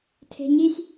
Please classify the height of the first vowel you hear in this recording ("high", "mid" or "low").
mid